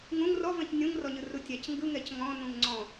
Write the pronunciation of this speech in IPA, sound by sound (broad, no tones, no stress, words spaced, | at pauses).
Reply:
ŋũŋ rɔvɛ̃c nʲũŋrɔɲɯru tʲæc ŋɡɯŋɛc ŋɔ̃nũŋ ŋ͡ǀɔ̃